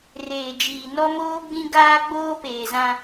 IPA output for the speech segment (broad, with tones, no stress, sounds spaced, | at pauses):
r eː˨ d͡ʒ iː˨ n ɔ˦ m oː˦ ɡ͡b ĩ˦ ɡ aː˦ ɡ͡b oː˦ p eː˨ z ã˦